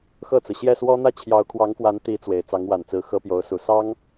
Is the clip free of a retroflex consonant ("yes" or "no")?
yes